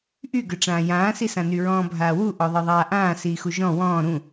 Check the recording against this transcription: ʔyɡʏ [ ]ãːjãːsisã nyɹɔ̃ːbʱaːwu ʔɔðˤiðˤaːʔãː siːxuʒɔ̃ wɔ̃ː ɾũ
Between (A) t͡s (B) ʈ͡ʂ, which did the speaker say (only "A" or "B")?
B